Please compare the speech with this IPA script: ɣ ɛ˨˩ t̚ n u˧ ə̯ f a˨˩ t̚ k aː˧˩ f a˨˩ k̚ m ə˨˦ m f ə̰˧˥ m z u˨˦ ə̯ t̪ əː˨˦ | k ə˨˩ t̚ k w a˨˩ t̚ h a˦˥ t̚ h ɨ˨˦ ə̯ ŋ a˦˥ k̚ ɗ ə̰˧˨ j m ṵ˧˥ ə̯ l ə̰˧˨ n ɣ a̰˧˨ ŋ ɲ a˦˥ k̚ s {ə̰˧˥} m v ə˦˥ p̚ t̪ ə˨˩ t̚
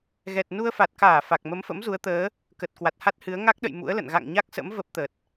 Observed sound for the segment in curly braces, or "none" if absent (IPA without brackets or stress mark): ə̰˧˥